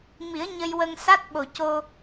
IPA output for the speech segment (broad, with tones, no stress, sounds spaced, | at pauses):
m i˨˩˦ ə̯ ɲ ə˧ j w ə˧ ŋ s a˦˥ t̚ ɓ o˨˩ c o˧